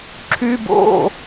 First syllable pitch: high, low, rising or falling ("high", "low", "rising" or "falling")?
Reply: high